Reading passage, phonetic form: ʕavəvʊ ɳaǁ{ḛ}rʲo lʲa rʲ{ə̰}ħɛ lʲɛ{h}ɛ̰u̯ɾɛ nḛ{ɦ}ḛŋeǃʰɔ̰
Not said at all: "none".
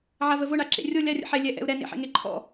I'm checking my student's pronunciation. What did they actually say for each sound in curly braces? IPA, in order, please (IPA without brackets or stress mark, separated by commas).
ḛ, ə̰, ʔ, ħ